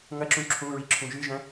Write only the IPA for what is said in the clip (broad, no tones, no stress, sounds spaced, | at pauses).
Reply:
ŋ ɐ ǁ ũ ǁʰ ũ ɹ i ǁʰ ũ ʒ ɨ ʒ ɐ̃